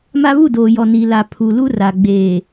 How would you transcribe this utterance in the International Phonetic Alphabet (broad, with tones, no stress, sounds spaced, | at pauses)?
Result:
m a˦ β u˦˨ d oː˨ j ɔ˨ n i˨ l a˨ pʰ u˨ l u˦ r a˨ ɡ͡b eː˨